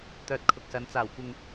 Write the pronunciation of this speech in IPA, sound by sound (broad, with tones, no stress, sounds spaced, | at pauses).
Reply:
t̪ œː˧ t̚ kʰ ʊ˨ k̚ s ɐ˨˧ n t͡s aː˨˩ w kʷ ɪ˨ ŋ